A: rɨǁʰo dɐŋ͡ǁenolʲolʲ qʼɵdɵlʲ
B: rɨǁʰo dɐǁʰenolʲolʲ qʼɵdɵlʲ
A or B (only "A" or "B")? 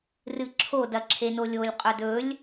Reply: B